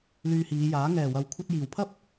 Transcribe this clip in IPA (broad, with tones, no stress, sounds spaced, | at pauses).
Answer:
l yː˧ h iː˨˧ j aː˨˥ ŋ ɛː˨˩ w ɐ˨ w kʷʰ ɐ˧ t̚ j iː˨˩ w pʰ ɐ˥ p̚